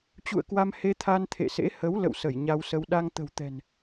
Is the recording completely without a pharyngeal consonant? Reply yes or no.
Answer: yes